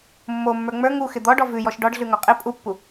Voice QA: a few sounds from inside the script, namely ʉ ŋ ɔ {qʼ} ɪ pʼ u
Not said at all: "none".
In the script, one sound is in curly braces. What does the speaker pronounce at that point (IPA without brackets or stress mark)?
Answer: qʼ